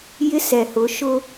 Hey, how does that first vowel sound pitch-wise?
high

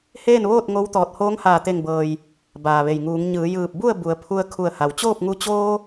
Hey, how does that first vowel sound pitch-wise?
falling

